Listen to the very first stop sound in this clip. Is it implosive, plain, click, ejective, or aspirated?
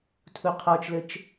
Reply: aspirated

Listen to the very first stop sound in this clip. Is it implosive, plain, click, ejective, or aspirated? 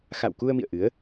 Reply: plain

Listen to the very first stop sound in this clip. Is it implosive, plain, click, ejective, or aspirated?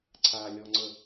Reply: click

